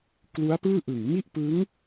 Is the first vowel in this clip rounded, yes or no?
yes